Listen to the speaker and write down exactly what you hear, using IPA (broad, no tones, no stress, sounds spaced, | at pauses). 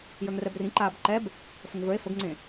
j ə˞ ŋ r ɛ b r ĩ ǃ aː b ǃ ɛ b | f ə ŋ v ə˞ e̯ f ə ɡ ŋ͡ǀ ẽ